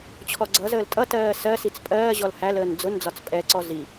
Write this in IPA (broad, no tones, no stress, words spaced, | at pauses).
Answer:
t͡ɕʰɔɡ͡ǀʌzəːl tʼʌtɜː sɜsit͡s pʼɜːʑɔl hæləːn d͡zʊnd͡zɒt͡s pʼɛǀɔ zi